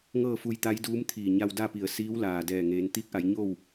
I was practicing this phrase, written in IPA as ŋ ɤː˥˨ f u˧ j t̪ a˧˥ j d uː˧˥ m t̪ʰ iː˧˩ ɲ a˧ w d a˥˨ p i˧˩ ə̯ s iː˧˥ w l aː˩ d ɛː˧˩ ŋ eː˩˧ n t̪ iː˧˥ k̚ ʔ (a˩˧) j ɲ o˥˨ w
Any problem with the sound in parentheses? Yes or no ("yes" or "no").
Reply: no